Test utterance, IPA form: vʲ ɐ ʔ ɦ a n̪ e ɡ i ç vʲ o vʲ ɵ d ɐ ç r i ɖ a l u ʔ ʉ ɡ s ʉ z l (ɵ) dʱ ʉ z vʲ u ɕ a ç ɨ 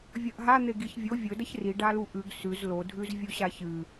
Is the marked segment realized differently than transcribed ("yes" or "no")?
yes